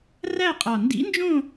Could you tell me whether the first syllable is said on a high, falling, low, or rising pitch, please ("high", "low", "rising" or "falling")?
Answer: falling